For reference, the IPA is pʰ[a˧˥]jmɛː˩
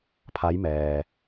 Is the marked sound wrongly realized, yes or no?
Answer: no